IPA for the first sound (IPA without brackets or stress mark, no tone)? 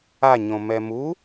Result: a